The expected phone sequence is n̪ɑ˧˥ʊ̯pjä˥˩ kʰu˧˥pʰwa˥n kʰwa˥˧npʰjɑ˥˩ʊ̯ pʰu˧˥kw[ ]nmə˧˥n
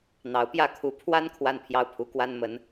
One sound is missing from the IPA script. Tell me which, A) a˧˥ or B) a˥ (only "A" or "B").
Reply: B